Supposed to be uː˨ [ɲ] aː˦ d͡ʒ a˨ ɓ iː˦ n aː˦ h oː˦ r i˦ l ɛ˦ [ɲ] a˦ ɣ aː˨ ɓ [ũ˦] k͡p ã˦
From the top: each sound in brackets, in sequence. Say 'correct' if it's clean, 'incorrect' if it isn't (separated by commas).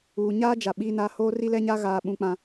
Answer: correct, correct, incorrect